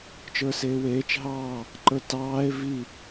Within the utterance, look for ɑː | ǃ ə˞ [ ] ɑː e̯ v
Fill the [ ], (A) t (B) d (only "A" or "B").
A